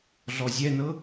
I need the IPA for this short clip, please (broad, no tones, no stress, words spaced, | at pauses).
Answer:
ɮɔzʲɛnɤ